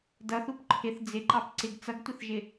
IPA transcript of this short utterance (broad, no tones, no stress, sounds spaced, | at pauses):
d ʌ θ u p ǃʰ ɪ θ d͡z ɪ ǃ ɑ p ǀ ɪ ɡ t͡s ʌ ɡ tʷ ɪ θ ʒ ɪ